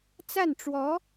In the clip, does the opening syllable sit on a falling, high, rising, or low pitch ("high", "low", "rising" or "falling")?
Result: falling